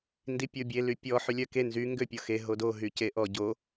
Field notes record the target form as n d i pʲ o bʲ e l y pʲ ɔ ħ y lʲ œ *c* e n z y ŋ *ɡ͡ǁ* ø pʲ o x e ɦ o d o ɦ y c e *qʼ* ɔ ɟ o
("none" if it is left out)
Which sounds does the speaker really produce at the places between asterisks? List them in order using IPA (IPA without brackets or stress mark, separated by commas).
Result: k, ɡ, ʔ